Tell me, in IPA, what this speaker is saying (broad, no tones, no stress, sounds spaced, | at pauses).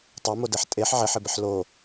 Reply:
tˤ e m o d e ħ tʼ e ħ ʕ e ħ ɪ b ɪ ħ l o